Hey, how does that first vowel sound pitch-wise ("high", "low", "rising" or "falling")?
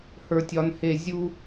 high